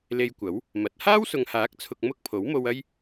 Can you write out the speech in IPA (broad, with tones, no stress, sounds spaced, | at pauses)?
l e˧ j kʷ ɐ˨˥ w | m ɐ˨˥ t̚ h aː˥ w s ʊ˨ ŋ h aː˨˥ k̚ t͡sʰ ʊ˨ k̚ m ʊ˥ k̚ pʰ o˨˥ w m o˧ w ɐ˥ j